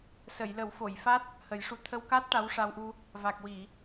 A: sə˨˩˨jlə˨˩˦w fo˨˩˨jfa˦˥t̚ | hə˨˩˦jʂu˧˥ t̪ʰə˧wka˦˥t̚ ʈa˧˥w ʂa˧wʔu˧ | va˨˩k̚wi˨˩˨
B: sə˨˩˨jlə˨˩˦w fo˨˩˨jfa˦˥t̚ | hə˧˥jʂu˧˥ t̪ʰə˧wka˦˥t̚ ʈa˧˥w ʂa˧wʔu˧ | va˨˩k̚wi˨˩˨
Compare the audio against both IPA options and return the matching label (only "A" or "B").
A